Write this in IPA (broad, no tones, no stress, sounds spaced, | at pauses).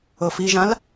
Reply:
ɤ f i ʒ ã l